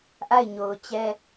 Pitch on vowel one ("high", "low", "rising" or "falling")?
falling